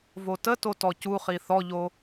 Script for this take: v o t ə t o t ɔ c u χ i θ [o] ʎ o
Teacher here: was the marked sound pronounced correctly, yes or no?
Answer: no